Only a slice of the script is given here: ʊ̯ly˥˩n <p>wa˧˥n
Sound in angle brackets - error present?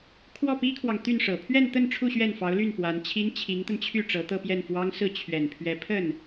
no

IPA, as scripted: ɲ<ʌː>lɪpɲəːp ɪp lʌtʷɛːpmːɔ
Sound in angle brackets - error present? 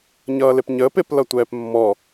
no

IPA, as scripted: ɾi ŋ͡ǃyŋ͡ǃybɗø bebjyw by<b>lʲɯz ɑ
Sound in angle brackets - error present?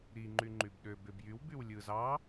yes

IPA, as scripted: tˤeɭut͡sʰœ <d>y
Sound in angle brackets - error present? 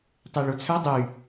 yes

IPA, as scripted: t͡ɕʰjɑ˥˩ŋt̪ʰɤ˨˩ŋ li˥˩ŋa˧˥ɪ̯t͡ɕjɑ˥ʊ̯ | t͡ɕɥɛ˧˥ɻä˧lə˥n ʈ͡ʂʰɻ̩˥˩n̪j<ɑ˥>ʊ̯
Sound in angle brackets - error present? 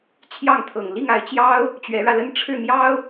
no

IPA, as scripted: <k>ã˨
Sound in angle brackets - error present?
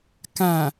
no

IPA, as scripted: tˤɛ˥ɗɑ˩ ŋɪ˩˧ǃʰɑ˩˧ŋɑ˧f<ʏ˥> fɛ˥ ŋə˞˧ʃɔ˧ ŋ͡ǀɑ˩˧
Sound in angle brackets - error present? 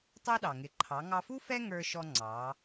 yes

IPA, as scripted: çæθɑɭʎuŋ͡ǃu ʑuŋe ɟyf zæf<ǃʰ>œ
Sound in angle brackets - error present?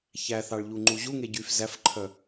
no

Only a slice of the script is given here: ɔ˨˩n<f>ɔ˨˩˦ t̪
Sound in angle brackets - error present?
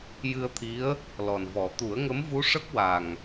yes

